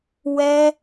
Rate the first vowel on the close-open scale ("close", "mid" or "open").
mid